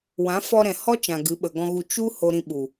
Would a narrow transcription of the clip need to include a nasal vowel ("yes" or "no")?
yes